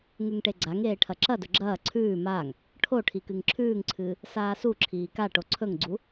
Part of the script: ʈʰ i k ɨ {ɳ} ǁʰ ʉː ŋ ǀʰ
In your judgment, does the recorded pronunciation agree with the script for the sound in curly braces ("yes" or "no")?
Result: no